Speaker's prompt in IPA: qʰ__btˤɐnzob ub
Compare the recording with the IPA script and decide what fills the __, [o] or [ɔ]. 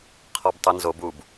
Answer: ɔ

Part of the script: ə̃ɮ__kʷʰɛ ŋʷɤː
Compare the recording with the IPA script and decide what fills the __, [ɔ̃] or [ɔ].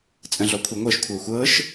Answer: ɔ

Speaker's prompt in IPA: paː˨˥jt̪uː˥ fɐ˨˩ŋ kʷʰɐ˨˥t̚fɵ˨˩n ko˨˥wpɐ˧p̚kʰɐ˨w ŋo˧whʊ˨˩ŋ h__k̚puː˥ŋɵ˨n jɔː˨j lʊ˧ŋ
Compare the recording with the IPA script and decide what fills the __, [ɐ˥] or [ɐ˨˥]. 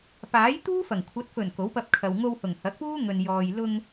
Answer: ɐ˨˥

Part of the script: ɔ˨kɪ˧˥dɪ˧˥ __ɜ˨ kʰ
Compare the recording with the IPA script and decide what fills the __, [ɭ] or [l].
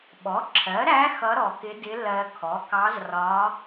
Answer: l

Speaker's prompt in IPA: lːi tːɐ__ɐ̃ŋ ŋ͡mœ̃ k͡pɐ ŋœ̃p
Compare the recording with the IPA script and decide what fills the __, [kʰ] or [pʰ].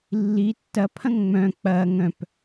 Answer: pʰ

